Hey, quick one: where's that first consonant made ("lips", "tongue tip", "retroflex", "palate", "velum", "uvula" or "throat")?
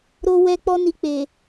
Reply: tongue tip